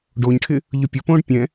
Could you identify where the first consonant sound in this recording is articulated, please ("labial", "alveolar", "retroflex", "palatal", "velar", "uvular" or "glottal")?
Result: retroflex